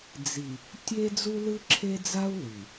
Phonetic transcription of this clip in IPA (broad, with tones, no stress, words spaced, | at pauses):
d͡zi˨ | tʲe˦ d͡zu˦lɯ˦ǁʰe˦d͡za˦u̯ lɯ˨